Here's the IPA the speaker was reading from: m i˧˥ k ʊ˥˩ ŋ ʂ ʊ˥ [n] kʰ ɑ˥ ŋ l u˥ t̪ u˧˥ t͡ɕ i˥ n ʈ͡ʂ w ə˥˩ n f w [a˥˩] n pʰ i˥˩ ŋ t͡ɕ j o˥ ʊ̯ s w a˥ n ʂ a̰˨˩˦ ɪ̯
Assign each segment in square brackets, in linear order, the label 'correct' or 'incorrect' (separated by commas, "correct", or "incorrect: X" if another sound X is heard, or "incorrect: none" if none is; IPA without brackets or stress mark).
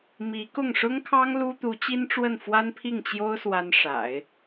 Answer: incorrect: ŋ, incorrect: a˥